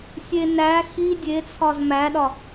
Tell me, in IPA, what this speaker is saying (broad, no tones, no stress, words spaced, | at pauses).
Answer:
sʲe næ xi dʲet͡sʰɒz mæɗɒ